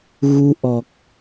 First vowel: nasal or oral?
oral